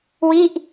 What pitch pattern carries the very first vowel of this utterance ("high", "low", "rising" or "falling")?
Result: falling